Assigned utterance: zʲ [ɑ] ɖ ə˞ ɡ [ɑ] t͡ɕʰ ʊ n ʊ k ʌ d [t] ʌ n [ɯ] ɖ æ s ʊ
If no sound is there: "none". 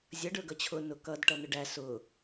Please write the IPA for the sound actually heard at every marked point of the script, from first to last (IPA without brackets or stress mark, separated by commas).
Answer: ʌ, ʌ, ʈ, ʊ